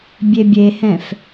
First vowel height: mid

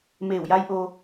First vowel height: mid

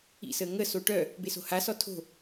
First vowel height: high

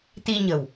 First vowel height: high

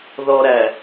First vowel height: mid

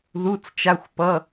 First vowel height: high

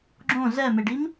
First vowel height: mid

